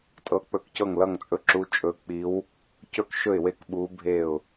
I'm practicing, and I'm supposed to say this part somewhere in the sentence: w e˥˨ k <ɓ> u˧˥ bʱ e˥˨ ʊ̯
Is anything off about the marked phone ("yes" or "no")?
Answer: no